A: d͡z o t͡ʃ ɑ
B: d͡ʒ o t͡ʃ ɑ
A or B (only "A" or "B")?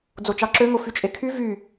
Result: A